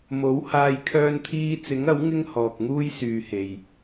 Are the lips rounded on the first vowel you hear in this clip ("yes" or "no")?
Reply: yes